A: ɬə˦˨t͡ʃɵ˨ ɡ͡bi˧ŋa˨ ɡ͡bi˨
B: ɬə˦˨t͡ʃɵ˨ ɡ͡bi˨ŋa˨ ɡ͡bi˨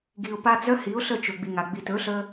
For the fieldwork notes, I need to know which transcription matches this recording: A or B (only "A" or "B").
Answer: B